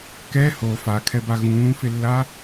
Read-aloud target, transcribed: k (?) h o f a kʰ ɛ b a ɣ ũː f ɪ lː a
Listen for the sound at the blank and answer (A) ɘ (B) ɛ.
B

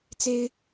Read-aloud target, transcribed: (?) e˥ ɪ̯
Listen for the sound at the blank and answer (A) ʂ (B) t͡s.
B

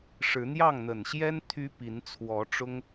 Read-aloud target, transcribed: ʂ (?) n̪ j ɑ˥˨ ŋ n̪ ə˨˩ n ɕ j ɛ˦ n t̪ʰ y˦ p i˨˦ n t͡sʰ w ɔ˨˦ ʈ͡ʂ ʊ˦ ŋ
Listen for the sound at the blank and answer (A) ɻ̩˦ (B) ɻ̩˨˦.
B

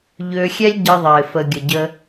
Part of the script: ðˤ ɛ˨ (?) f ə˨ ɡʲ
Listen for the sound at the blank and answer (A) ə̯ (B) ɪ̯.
B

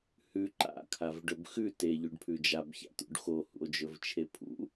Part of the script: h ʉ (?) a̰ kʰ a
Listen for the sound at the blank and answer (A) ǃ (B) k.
A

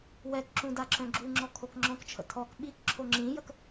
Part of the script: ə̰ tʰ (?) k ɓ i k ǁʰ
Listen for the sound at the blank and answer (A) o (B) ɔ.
B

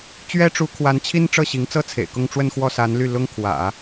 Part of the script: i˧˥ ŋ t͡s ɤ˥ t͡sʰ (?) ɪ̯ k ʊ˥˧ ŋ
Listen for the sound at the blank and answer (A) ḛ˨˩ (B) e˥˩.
A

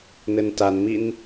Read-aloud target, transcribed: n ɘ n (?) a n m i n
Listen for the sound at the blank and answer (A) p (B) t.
B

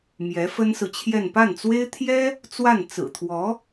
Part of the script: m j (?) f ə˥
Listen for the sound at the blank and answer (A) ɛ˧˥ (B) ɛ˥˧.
A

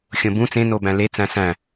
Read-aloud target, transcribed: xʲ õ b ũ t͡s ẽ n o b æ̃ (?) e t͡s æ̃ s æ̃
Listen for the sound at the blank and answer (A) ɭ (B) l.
B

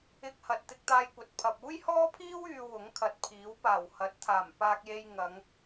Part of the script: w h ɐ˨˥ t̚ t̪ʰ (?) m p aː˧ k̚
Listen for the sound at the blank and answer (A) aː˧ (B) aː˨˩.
B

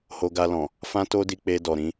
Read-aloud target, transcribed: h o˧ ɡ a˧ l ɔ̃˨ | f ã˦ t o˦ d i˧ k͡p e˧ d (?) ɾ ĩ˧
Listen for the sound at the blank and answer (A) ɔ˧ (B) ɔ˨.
B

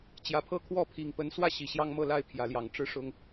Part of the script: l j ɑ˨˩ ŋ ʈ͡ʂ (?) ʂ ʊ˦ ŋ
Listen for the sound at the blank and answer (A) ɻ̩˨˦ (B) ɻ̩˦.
B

